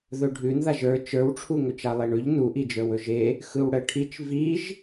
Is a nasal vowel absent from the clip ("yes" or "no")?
yes